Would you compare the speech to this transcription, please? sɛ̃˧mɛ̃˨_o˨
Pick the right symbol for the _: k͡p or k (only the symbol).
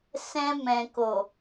k